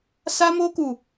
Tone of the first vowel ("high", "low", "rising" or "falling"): high